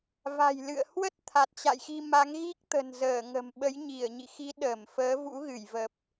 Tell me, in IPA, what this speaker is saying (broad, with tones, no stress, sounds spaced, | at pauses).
v a̤˨˩ j l ɨ̰˧˨ ə̯ h w ə˦˥ t̚ t̪ʰ a˨˩ t̚ t͡ɕ a̰˧˨ j x i˧ m a˨˦ ŋ ɣ i˦˥ k̚ t̪ ə̤˨˩ n z əː˧˩ ŋ ə̤˨˩ m ɓ ə˨˦ j ɲ i˧˩ ə̯ ɲ ḭ˧˨ x i˨˦ ɗ əː˧˩ m f əː˨˦ v ṵ˧˥ ɣ ɨ˧˩ j v ə˨˩ p̚